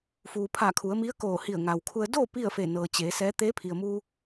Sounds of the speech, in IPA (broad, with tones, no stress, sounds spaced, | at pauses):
f uː˩ pʰ a˧˩ kʰ u˩˧ ə̯ m i˧˥ ə̯ k oː˧˩ h i˧˩ ə̯ ŋ a˩ w kʰ u˧ ə̯ d o˥˨ p i˥˨ ə̯ f e˧˩ n ɤː˩ t͡ɕ eː˩˧ s ɛː˧˥ t̪ eː˧˥ pʰ i˩ ə̯ m uː˧